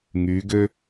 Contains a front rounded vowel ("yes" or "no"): yes